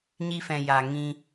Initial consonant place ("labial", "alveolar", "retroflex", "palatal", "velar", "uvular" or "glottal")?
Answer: palatal